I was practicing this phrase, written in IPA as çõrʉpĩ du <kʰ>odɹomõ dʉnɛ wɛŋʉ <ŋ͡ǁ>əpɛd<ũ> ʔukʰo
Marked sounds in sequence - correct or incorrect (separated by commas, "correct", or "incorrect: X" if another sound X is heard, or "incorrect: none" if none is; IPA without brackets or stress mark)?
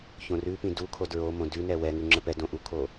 correct, correct, incorrect: õ